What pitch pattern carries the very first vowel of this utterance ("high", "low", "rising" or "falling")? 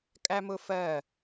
high